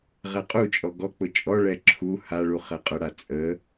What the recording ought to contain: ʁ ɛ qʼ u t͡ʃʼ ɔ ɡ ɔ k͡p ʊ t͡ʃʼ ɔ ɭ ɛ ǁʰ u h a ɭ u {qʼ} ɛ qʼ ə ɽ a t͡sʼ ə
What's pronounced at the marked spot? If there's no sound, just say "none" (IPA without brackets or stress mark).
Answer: χ